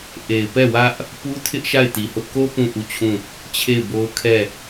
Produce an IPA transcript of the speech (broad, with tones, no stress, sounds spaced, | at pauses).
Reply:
ʔ e˨ ɪ̯ p ɛ˦˨ w ä˦ ʔ | p u˦ tʰ ɪ˦ ʔ ʃ a˦˨ ɪ̯ t i˨ h ʊ˦ ʔ k o˦ p ũ˦˨ ʔ u˦˨ t͡ɕʰ ũ˦˨ | t͡ɕʰ e˦˨ ɪ̯ b o˦ ʊ̯ kʰ ɛ˦˨